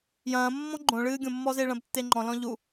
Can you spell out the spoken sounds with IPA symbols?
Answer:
j ɐ̃ː mː ɔ̃ ɡ͡ǃ õ ɭ ɨː ɡʲ õ mː ɔ z e ɭ ɐ̃ b tː e ŋ͡ǃ ɔ̃ l ɔ̃ ʎ u

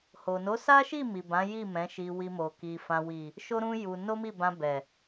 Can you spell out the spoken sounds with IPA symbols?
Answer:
h o˨ n o˨˦ s a˦ ʃ i˦˨ m i˨ b ã˨˦ j i˦˨ m ɛ̃˨˦ ʃ i˧ w i˧ m o˨ k i˨ f ã˨ w i˨ | ʃ o˦ ɾ ũ˦ j u˧ n o˦ m i˦˨ b ã˧ b ɛ˨

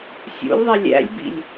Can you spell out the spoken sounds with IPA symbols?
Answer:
sʲ ṵ lʲ ðˤ ɛ lʲ æ̰ lʲ b ḭ lʲ

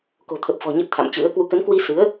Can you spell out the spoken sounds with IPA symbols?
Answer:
k o̤˨˩ t̪ʰ ə˨˩ p̚ f ɔ̤˨˩ ɲ ə˦˥ t̚ t̪ʰ a̰˧˨ m t͡ɕ ɨ̰˧˥ ə̯ k w u˨˦ k ə˨˦ n k w i˧ s ɨ˨˦ ə̯

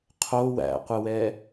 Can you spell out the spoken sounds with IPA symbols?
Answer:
qʰ o w æ̰ qʷ ɘ w ɛ

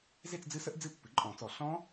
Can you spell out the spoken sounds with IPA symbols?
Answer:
z e˥˧ t͡s d͡z ɨ˦˥ s ə˦˥ ʔ d͡z ɨ˥˧ pː ɨ˩˥ ǃʼ ɔ̃˨˩˦ t͡s ɔ˨˩˦ ɬ ɔ̃˦˥

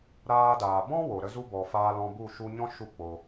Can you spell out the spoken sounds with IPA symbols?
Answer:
ɾ aː˧ d aː˨ b ɔ̃˦ w o˨ ɾ ə˦ z u˦ b ɔ˨ f aː˧ l ɔ̃˧ b u˦˨ ʃ u˧ ɲ ɔ̃˦ ʃ u˦ k͡p o˧

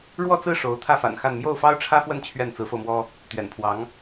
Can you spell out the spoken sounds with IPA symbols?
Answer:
ɻ w ɔ˥˧ t͡s ɹ̩˥˩ ʂ o˧˥ ʊ̯ t̪ʰ ä˥˩ f a̰˨˩ n x a˥˧ n m j o˥˩ ʊ̯ f ɑ˥ ʊ̯ ʈ͡ʂʰ ä˥ f w ə˥˧ n t͡ɕʰ ɥ ɛ˥˩ n t͡s ɹ̩˧˥ f o˧ ʊ̯ m w ɔ˥ | t̪ ɥ ɛ̰˨˩ n pʰ w ɑ˧˥ ŋ

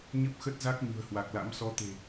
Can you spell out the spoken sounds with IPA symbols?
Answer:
ɲ ə˦˥ p̚ x ə˦˥ t̚ z a˦˥ k̚ ɲ ṳ˨˩ ə̯ h w a˨˩ k̚ l a̰˧˥ m s ɔ˨˦ t̪ e̤˨˩

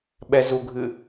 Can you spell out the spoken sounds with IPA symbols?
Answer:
ɓ ɛ z u ɡʱ ɨ

